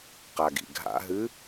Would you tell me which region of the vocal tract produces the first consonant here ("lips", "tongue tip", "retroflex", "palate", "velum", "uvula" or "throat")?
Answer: uvula